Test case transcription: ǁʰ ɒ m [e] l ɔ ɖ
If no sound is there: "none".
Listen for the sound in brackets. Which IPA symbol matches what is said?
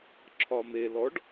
e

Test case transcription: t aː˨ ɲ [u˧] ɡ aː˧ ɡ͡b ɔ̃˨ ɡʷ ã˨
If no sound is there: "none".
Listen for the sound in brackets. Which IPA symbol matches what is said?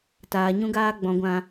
ũ˧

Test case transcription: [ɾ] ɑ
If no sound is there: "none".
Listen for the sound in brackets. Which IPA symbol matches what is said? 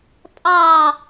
tʼ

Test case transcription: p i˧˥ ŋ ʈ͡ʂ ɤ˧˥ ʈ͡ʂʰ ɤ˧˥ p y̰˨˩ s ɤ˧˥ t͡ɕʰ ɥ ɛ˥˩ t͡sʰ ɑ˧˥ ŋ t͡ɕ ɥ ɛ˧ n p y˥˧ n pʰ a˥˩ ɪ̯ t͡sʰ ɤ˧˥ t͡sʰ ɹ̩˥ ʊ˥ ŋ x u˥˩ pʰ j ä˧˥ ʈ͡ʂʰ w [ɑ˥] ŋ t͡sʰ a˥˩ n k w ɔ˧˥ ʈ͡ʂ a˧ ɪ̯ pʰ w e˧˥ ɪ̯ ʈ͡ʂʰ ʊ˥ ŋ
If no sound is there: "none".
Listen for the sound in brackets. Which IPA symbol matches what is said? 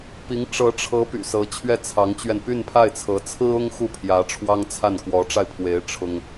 ɑ˥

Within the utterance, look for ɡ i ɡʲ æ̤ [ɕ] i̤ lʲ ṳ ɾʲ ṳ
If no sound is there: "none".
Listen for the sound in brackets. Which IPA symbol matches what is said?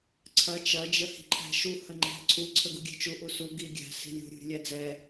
s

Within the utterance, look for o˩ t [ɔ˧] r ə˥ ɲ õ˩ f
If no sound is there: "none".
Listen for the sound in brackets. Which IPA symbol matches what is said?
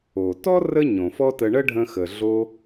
ɔ˥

